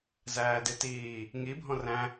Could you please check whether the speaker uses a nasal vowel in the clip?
yes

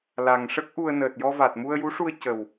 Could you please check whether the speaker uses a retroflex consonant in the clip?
yes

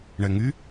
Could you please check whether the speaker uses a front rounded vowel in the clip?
yes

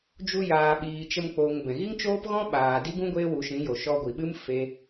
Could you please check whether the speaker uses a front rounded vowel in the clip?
no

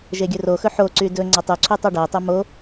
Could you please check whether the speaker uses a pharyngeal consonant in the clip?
yes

